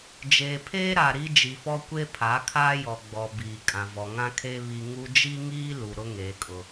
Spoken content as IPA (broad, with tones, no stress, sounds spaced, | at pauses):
d͡ʒ eː˨ pʰ eː˦ ɾ a˨ ɾ i˦ d͡ʒ i˨ f ɔ˦ kʷ e˦ pʰ a˨˦ kʰ aː˦ j ɔ˨ ɡ͡b ɔ˨ b iː˨ kʼ ã˨ v ɔ˨ ŋ ã˦ kʰ eː˦ β i˦ ŋ u˦ d͡ʒ i˦ ŋ iː˦ l u˨ ɾ ʊ˦ ŋ eː˨ kʼ ʊ˨